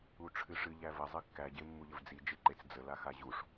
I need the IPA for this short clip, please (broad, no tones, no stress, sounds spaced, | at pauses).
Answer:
u ʈ͡ʂʰ ɨ ʂ ɨ ʎ æ v ə zˤ ɨ kː æ ɟ e mː u ʎ ə v d͡z i d͡ʒ e ǃ e t͡s d͡z ə l a x a ʑ u ʂ